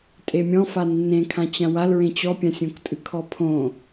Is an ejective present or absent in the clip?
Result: present